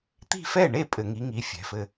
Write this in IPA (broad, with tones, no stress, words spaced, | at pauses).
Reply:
t̪i̤˥˨fɛ˥˨ɳe˥˨ pʼɘ˧˩˧ŋi˨˥ŋi˨˥ fʲɛ̤˩˧˩fɘ˥˨